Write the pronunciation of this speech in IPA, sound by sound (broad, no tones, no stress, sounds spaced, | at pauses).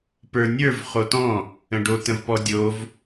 p ə˞ nʲ ə˞ v χ o t ɔ̃ | ə̃ ɖ o t ə̃ v p ɔ dʲ o v